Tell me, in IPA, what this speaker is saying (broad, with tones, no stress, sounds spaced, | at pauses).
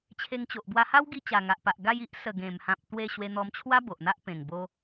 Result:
t͡ɕʰ e˧ ŋ t͡ɕ o˨ ʔ b w a˧ h a˦ w ɡ i˧ t͡ɕ a˨˩ ŋ a˨ ʔ p a˨ ʔ ɡ a˧ j i˦ ʔ s ə˨˩ ɡ ẽ˨˩ m h ã˨ p̚ t̪ w e˥˧ ɕ w e˧ n̪ ɔ˧ m t͡ɕʰ w a˦ b o˨ ʔ n̪ a˦ ʔ p ẽ˨˩ ŋ b o˧